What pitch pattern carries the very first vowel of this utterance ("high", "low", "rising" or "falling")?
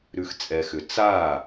low